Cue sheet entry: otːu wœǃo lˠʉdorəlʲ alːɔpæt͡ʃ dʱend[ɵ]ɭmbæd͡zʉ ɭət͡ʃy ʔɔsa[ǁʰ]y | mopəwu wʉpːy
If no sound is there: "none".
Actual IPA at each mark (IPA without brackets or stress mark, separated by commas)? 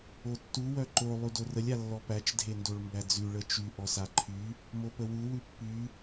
o, ǃʰ